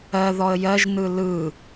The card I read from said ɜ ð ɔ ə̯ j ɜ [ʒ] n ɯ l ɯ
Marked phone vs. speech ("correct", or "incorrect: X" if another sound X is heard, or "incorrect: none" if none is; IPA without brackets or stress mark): correct